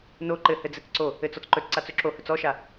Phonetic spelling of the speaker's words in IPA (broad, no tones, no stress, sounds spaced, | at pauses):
n o ǃ ɘ h ɘ d͡z ɘ t͡s ǀ o | ɘ t͡s ɔ t͡s ǃ ɵ t͡s ǀ a t͡s ɵ ǁ o h ɵ t͡s ɔ ʃ a